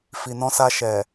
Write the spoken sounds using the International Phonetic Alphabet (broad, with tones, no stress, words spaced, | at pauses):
fi˨nɔ̃˧sa˧ʃɛ˨